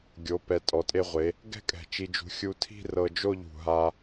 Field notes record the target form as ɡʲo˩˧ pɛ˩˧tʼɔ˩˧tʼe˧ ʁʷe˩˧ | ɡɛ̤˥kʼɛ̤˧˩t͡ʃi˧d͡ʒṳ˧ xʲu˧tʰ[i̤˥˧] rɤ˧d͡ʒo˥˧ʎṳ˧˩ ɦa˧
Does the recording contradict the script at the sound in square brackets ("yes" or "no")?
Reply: no